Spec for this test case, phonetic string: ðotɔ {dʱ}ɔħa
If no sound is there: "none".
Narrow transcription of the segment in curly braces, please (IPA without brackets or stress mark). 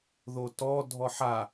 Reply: dʱ